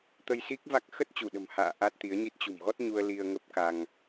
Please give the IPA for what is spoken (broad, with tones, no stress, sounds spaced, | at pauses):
t̪ ə˧ j s i˦˥ k̚ v a˦˥ k̚ x ə˦˥ t̚ t͡ɕ u˧˩ ɗ ə̤˨˩ m h a̰ː˧˨ ʔ a˦˥ t̚ t̪ i˨˦ ə̯ ɲ i˦˥ t̚ t͡ɕ ṳ˨˩ m ɣ ɔ˦˥ t̚ ɲ u˧ ə̯ l i˧ ə̯ ŋ ə˦˥ p̚ k a˧ ŋ